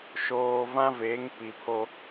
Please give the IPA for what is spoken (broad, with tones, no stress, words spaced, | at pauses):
ʃoː˨vã˦ veː˨˦ŋ pi˨pʰo˦